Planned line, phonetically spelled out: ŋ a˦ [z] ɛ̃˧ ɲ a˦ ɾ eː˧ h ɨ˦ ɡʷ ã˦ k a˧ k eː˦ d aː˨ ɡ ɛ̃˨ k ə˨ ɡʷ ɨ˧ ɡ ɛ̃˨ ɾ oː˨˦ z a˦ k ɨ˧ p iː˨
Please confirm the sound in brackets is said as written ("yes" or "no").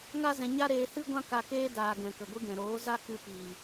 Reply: yes